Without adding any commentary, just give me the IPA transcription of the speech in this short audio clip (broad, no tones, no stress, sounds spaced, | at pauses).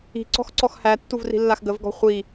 i̤ ǀ ɔ̤ x ǀ ɔ x h æ tː u v r i̤ lː a x ɡ ə v ɡ ɔ̤ χʷ i